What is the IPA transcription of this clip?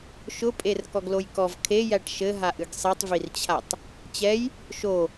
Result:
ʃʊpʼer kɔɡlojkɔv kʰejæʈ ʃɘɦaʔɨɡ sˤitˤvirt͡ɕʰatˤ | t͡ɕɛj | ʃo

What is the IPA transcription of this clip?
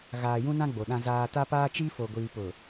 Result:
ɣaː˨jũ˦nã˦ ɡ͡bo˨ɗã˦zaː˦ ta˦paː˦t͡ʃi˦ fo˨ɡʷiː˨pʊ˨

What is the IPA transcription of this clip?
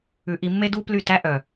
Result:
ʉ˧ ʔi˧mːe˦du˦ ply˦˨tæ˦ ʔœ˨

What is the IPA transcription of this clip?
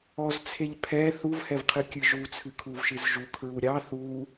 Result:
ɔzt͡sʰeʎ pʰɛ θuvhɛvqʰɨ kʲɨʒut͡sʰɨ kʰuvʃɨzʒu kʰɹuɾʲɑ θu

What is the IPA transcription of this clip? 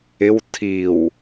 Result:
ɪw tʰiw

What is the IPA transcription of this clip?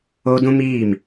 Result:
oː˦ dũ˦ miː˦˨m

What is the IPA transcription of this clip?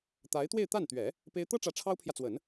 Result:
t̪a˧˥ɪ̯t̪we˥˧ɪ̯t̪a˥˩nt̪ɥɛ˨˩˦ | pe˥ɪ̯ t̪ɤ˥ʈ͡ʂä˧˥ ʈ͡ʂʰɑ˥ʊ̯pʰjä˨t͡swə˨˩˦n

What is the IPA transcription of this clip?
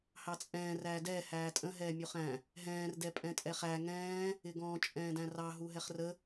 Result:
hɑt͡sʼɛ̃ː ræːdɛː hæːtʼə̃ ɦɛːmʲuχæ̃ | ɦɛ̃ːr dɛpʼɛ̃tʼɛχæ ŋɛ̃ː | ɪɡɔ̃ t͡ʃʼɛ̃ːdæ̃rɑ ɦuɦɛχrə

